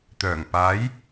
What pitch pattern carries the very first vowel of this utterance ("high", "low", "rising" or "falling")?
low